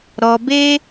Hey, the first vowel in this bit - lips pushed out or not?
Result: yes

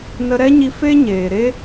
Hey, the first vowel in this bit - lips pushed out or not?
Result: no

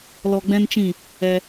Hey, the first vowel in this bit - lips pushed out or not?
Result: yes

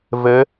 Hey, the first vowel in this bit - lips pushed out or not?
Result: no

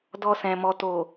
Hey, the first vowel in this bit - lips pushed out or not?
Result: yes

